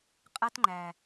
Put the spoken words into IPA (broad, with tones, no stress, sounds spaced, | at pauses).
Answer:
qʼ a˦ t ŋ͡ǃ æ˨